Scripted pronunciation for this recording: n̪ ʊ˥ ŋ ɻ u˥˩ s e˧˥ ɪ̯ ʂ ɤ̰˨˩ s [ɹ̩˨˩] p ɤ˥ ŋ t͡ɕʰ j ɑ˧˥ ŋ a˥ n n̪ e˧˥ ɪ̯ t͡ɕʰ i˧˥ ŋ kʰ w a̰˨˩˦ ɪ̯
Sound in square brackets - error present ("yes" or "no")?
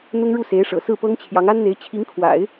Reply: yes